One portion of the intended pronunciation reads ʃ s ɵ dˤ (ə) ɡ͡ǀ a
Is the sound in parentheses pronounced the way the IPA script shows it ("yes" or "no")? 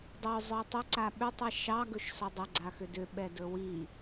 yes